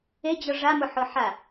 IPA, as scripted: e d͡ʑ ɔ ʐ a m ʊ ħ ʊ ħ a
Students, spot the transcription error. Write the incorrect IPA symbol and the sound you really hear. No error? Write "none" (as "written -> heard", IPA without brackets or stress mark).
none